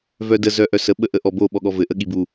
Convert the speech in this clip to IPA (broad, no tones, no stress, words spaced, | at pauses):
vœdə zœʔœsə ɓəʔəʔɔbo ɓɔɠɔvɘ ʔəɠibu